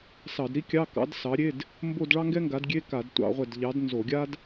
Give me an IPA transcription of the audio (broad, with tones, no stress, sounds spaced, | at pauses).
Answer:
s ɑ˧˩˧ d ɾ i˥ kʲ ɑ˧˥˧ k ɑ̰˨˥ d s ɑ˨˥ ɾʲ e˧˥˧ d | m b o˥˧ d ɭ ɑ˥ ŋ ɡ ɛ˥ ŋ ɡ a˨˥ d ɡʲ e˧˥˧ k a˧˩˧ d tʷ ɑ̰˧˩˧ ʁʷ ɛ˧˩ d ʎ ɑ˨˥ d n z o˧˩˧ ɡʲ a˥ d